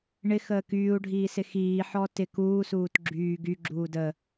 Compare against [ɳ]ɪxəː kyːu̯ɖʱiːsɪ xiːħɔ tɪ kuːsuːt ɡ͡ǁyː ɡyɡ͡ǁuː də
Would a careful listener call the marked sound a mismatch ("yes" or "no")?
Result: no